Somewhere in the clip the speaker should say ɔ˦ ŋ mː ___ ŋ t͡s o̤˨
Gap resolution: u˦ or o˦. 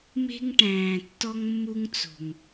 u˦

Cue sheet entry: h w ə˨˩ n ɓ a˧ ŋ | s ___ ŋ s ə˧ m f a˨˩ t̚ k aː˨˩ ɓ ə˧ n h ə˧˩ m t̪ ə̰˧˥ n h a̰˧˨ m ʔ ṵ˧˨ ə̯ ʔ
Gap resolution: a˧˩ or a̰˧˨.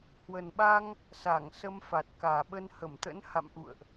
a˧˩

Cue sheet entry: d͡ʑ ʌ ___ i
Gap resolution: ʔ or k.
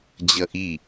ʔ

